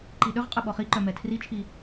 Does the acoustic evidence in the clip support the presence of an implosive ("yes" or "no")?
yes